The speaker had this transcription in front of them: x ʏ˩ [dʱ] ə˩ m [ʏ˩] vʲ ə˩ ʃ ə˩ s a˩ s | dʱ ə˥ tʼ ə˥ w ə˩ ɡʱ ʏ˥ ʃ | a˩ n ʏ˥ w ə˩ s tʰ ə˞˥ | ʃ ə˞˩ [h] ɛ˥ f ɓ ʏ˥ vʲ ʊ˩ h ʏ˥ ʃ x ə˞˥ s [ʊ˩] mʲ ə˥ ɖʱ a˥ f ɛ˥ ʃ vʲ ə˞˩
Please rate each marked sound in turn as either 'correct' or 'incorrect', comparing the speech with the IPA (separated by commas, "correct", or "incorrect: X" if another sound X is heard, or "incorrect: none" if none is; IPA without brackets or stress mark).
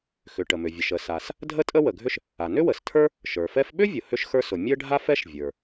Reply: incorrect: ʈ, correct, incorrect: f, correct